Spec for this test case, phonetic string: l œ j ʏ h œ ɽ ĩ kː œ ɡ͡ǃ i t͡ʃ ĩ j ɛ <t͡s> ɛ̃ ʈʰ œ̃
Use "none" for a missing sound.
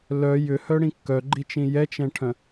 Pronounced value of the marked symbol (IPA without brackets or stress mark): t͡ʃ